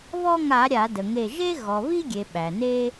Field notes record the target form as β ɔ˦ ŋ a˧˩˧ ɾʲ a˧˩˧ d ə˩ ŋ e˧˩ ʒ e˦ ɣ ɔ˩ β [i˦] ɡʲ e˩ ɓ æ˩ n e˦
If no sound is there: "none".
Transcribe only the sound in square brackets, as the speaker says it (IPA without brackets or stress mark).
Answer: i˦